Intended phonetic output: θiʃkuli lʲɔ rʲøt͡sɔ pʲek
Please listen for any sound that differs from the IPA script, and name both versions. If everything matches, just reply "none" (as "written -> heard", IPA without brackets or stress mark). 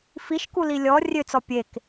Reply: θ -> f